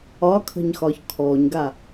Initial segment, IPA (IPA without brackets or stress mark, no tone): ɒ